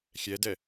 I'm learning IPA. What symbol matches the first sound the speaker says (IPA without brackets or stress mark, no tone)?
xʲ